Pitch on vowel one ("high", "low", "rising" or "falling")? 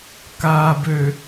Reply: low